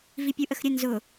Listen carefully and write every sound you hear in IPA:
v i pʲ u ʔ ə x ɾʲ ə n z ʊ

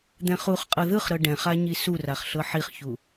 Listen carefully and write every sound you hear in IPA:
d̪ ɛ̃ χ u χ qʼ ɤ ð ɯ χ ɾ ɤ ɖ ɛ̃ χ a ɲ i s u r a χ ɬ ɤ ħ i χ ç u

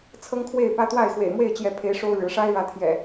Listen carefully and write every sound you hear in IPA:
t͡sʰ ɤ˦ ŋ kʰ w e˥˨ ɪ̯ p ä˦ t̪ w a˥˨ ɪ̯ x w ḛ˨˩ ɪ̯ m w e˥˨ ɪ̯ t͡ɕ j ɛ˨˦ pʰ e˨˦ ɪ̯ ʂ o˦ ʊ̯ ɻ ɻ̩˨˦ ʂ a˦ ɪ̯ ɻ ä˨˦ t̪ʰ j ɛ̰˨˩

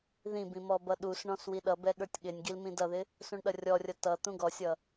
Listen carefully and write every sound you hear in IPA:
ð ĩ b ĩ m ɔ b ʌ ɗ u s ɳ ɔ̃ s w i ɗ ʌ b ɛ ɠ ə˞ tʲ ɠ ɪ nʲ ɡ i l m ĩ d ʌ ð ɪ | s ũ ɳ ɗ ʌ rʲ ɔ rʲ ʌ t ʌ t̪ ũ ɡ ɔ sʲ ʌ

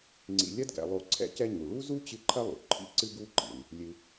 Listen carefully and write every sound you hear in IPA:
ŋ͡ǀ ḭ˨ lʲ ɐ˥ d ɡ ɛ̰˨ lˠ o˦ ǀʰ ɛ̰˦ c ɛ˦ ɲ u˩ ɭ u˥ z u˥ t͡ɕ ɨ˦ ǃʰ ɐ˥ lˠ ṵ˩ ǃʰ ḭ˥ ǀ ɨ˥ ɡ u˥ ǃ ḭ˩ n | lʲ ɨ˨

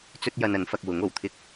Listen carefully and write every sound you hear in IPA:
t͡s ɵ˥ t̚ j ɐ˧ n ɐ˨˥ n f ɐ˧ k̚ w ʊ˨˥ ŋ o˨˩ w t̪ʰ ɪ˥ k̚

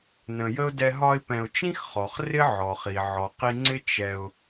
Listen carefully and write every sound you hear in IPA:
n ə̃˨ j ə˥ ʊ̯ d ɛ˦ ɦ ɒ˦ ɪ̯ p ɛ̃˨ ʊ̯ t͡ʃ ĩ˥ x χ ɔ˩ χ r ɪ˥ ʕ ɔ˩ χ i˩ ʕ ɔ˩ q i˦ ŋ͡ǀ ɪ˥ t͡ʃ ɛ˨ ʊ̯

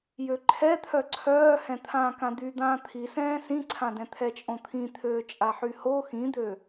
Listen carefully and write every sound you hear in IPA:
j ø ǃʰ ɛ t̪ʰ œ ǀʰ œː h ɛ̃ t̪ʰ ãː k ã d̪ y d̪ ãː t̪ʰ i s ɛ̃ː s ĩ ǀʰ ã d ɛ̃ t̪ʰ ɛ t͡ʃʼ õ t̪ʰ ĩ t̪ʰ øː t͡ʃʼ a ħ y h o x ĩ d̪ ø

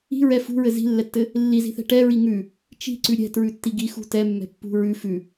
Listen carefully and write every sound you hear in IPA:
i̤ ɹ ɛ f ṳ ɹ ɘ z i̤ lː ɛ tː ɘ | lː i z i̤ θ ɛ̤ ʈ ɛ ɹ i ŋ ʉ | t͡ʃ i̤ ǀ ʉ ɾʲ ɛ̤ t ɹ ʉ tː i ɡ i x ṳ t ɛ mː ɛ̤ pː ṳ ɹ ʉ f ʉ

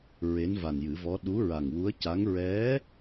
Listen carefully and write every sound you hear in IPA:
ɹ e˧˥ n v a˨˩ n j ɨ˨˩˦ v ɔ˧˥ ɗ u˧˥ ɹ a˨˩ ŋ w u˧˥ ə̯ c a˧˥ ŋ ɹ ɛ˧˥

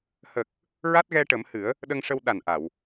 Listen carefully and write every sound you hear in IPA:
h ə˨˩ k̚ | ɹ a˦˥ t̚ ɣ ɛ˧ ʈ ə˨˩˦ m h ɨ˨˩˦ ə̯ | ɗ ə˧ ŋ ʂ ə˧ w ɗ a˨˩ n ʔ a˨˩˨ w

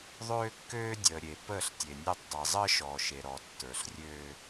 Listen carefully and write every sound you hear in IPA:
ðˤ øː˦ kː øː˦ dʲ əː˨ ɾʲ e˨ p əː˦˨ ɬ tʲ e˨ nʲ ø˦ tˤ dˤ e˨ zˤ əː˦ ʃ ɔː˨ ʃ e˨ ɾ ɔ˨ tː ə˞˨ ɬ rʲ øː˦

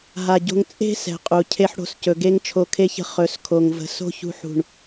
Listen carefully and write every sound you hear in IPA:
ɦ a˨ ɟ o̤˧ ŋ t͡sʼ e̤˦ s ɛ̤˨ qʼ u˨ cʰ e˦ ħ ɽ o̤˧ s c ɵ˨ ɡ e˦ ŋ t͡ʃʰ o˧ kʰ e˦ ç ə̤˦ χ ɵ˨˦ s kʰ o˨ ŋ v ə̤˧ s o̤˦ ç ṳ˧ ħ ṳ˦˨ ɳ

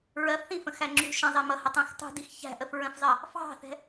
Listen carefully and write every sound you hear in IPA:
ɹ ɜ f θ ĩ f ə̃ x æ ŋ͡ǁ ṳ ʃ ə̃ zˤ ɛ m ʌ h ə tˤ æ̃ x tˤ ṳ d i x ç æ̤ ʔ ə f ɹ ə̃ f zˤ ɜ | f ɑ̤ θ ɛ̤

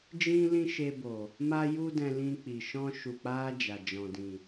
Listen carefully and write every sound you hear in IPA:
d͡ʒ ĩ˦ l ĩ˦ ʃ e˧ b o˨ | m a˦ j u˦ d ɛ̃˧ l ĩ˧ k͡p i˨ ʃ ɔ̃˧ ʃ u˨ k͡p a˧ d͡ʒ a˨ d͡ʒ ɔ̃˨ d ĩ˨

